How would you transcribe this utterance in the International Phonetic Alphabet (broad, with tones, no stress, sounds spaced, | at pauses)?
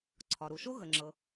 ǀʰ ɒ˩ ɾ u˩ ʃ o˥ ɣ ə˩ ŋ͡ǁ ɤ˩